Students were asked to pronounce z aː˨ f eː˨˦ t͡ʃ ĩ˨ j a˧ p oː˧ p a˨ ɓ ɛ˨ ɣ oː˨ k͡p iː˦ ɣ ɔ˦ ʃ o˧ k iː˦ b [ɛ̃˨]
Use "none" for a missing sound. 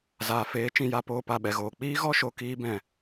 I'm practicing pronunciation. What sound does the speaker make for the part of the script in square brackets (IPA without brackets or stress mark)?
ɛ̃˨